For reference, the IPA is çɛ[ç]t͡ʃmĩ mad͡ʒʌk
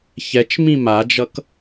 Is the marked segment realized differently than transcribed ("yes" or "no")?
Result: yes